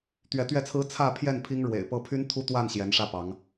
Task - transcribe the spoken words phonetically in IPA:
t̪ ɥ ɛ˨˦ t̪ ɥ ɛ˥˨ t͡sʰ ɹ̩˦ t͡sʰ ä˥˨ pʰ j ɛ˥˨ n pʰ i˦ ŋ ɻ w ḛ˨˩ ɪ̯ p ɤ˦ pʰ y˦ n t̪ʰ u˦ t̪ w a˥˨ n ɕ j ɛ˨˦ n ʂ ä˥˨ p ɑ˨˦ ŋ

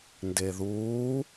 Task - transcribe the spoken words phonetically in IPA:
n d e ð uː

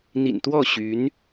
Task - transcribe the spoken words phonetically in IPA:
n̪ ḭ˨˩ n t̪ w ɔ˥˩ ɕ y˧˥ n

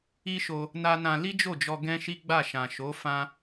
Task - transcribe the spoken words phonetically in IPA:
i˦ ʃ o˧ | n a˦ n ã˧ l i˦ d͡ʒ o˦˨ d͡ʒ ɔ˧ ɡ ɛ̃˦ ʃ i˦ ɡ͡b a˦˨ ʃ ã˨ ʃ o˨˦ f ã˦

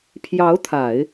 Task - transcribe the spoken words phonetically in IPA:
pʰ j ɑ˧˥ ʊ̯ t̪ʰ a˨˩˦ ɪ̯

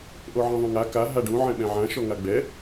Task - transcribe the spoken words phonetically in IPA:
ʔ o ʕ ẽ ðˤ ũ ŋ a k a ɦ a ɖ ũ ʕ ɛ̃ ɓ ɛ̃ ʕ ã ʃ ɔ ŋ a ɡ͡b ɛ

